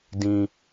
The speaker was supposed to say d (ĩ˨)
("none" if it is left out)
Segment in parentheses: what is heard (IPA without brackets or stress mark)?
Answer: ĩ˨